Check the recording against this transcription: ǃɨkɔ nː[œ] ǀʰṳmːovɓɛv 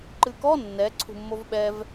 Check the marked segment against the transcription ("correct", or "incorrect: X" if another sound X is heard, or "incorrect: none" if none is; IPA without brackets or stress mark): incorrect: ɛ